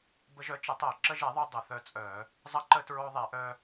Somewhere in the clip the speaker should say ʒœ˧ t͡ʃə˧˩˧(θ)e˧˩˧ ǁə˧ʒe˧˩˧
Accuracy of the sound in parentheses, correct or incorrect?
incorrect: tˤ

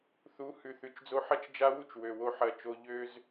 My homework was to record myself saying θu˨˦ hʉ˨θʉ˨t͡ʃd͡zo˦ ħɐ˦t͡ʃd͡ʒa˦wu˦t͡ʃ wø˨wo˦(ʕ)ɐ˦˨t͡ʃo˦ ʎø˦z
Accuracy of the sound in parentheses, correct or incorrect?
incorrect: ħ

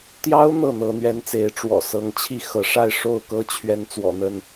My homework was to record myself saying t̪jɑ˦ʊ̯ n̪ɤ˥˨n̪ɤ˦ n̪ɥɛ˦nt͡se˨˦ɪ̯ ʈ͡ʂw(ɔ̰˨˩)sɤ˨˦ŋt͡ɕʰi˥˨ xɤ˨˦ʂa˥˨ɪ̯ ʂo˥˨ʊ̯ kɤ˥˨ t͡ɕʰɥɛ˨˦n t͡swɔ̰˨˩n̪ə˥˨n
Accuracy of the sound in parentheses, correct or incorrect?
correct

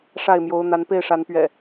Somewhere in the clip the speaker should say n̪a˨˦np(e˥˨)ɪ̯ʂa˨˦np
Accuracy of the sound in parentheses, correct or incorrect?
correct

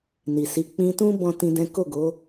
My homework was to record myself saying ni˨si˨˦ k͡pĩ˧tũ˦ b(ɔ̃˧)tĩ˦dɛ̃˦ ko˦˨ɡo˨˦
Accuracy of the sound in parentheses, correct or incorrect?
incorrect: ɔ̃˦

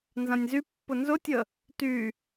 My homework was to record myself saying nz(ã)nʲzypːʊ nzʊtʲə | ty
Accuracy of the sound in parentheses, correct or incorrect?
correct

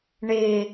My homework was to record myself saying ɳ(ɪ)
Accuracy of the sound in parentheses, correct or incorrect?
correct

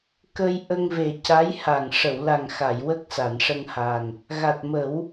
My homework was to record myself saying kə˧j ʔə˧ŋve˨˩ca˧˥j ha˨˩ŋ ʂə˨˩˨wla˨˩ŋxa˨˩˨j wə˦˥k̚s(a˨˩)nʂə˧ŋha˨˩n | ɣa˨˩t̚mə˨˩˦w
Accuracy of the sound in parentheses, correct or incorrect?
incorrect: a˨˩˨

